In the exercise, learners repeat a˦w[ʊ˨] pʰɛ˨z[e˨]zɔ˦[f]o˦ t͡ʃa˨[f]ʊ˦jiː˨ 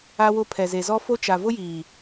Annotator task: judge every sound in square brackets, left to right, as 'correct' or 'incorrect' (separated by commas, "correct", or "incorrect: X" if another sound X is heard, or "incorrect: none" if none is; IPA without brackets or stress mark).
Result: incorrect: ʊ˦, correct, correct, incorrect: v